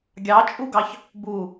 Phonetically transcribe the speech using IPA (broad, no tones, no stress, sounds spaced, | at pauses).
ɡʲ ɑ t͡ʃʼ u ɡ ɑ ç | b u